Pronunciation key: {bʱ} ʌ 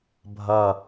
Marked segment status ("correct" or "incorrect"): correct